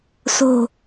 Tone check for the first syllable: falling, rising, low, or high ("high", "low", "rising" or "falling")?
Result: low